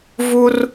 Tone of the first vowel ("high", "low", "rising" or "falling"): high